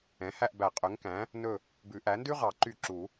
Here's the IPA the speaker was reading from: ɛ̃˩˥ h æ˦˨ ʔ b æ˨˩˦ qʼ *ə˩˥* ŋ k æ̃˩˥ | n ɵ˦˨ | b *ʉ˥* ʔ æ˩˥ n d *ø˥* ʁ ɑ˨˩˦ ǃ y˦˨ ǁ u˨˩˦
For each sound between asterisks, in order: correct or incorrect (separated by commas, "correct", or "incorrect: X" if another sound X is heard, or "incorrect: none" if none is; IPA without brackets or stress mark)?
incorrect: ø˩˥, incorrect: ʉ˨˩˦, incorrect: ʉ˥